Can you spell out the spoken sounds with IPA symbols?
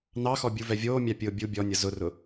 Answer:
n ɑ x ɔ bʲ u v ɛ vʲ oː mʲ a pʲ ʊː bʲ u bʲ ɔ nʲ ʌ z ʊ r ʊ

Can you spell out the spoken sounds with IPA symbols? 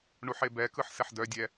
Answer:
ɳ u ħ e b ɛ k ɯ ħ s ɛ ħ d œ dʲ ɛ

